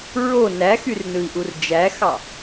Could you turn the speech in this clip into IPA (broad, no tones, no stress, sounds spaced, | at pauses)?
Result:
ɹ o n æ x y r n ɯ i̯ ʔ u r d͡ʒ æ x ɑ